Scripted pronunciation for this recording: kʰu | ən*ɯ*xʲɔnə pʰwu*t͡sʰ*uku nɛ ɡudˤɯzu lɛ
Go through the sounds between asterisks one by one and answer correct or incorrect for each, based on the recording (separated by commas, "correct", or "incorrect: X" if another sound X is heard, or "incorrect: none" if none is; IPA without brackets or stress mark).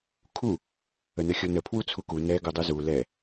incorrect: ə, correct